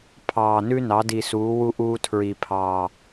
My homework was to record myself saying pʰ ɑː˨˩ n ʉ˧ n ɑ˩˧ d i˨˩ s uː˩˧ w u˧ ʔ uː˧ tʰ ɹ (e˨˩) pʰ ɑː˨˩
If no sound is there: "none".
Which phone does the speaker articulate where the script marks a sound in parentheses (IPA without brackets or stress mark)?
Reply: i˨˩